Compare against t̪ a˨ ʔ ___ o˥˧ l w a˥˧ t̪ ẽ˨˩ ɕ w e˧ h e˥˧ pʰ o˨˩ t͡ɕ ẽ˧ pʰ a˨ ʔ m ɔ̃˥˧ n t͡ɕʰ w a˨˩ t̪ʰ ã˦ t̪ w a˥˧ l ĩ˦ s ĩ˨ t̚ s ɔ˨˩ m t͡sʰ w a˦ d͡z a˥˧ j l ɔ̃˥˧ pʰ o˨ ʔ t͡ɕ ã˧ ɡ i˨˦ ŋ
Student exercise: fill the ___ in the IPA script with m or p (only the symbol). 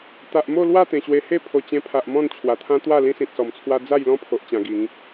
m